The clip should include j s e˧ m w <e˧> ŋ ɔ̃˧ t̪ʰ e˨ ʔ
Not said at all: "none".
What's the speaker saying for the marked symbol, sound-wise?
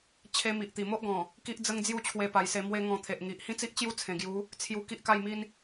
e˧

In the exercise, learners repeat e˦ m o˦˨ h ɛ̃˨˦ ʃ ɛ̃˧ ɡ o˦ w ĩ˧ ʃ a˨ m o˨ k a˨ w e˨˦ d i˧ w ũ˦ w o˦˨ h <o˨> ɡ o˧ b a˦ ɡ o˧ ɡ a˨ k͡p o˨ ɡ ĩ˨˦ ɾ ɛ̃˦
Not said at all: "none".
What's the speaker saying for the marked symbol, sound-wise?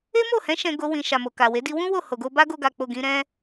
o˨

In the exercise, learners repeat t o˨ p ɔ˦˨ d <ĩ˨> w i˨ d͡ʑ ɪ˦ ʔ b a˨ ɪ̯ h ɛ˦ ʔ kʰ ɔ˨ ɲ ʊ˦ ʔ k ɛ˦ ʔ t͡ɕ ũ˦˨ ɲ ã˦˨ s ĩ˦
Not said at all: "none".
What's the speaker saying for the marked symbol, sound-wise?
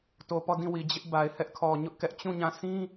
ĩ˦˨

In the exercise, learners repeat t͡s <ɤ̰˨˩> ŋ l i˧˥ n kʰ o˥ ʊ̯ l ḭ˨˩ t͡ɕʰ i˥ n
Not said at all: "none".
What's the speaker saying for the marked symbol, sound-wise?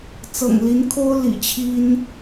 ɤ̰˨˩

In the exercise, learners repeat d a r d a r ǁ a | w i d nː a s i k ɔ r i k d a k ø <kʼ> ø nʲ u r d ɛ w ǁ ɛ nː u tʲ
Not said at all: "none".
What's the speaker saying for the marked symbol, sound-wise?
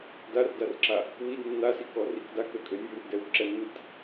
kʼ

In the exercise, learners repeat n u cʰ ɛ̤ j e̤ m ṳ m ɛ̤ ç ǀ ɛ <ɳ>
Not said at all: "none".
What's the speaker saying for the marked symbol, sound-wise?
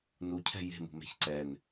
n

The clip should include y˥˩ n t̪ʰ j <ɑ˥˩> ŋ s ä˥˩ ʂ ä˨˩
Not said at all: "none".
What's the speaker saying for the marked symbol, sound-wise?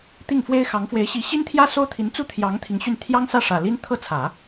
ɑ˥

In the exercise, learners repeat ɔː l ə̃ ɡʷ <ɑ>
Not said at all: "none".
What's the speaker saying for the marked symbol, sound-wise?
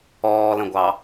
ɑ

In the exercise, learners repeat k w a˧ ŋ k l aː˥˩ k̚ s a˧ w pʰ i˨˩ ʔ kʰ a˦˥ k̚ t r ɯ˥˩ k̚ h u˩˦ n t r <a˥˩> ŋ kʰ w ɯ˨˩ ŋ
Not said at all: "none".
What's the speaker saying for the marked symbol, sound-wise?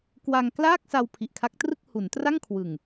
a˥˩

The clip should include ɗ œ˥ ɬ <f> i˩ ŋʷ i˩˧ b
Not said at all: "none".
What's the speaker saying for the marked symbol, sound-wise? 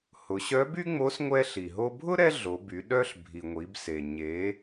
bʱ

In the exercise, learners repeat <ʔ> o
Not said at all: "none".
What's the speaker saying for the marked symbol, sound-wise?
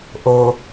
ʔ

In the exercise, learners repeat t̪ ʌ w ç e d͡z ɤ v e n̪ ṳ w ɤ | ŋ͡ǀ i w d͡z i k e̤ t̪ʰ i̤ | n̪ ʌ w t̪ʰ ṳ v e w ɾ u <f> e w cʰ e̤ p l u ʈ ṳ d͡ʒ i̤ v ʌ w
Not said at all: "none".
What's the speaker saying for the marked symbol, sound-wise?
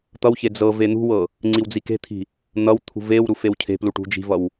f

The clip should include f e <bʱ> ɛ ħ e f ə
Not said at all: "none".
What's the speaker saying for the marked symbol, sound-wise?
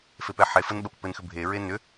p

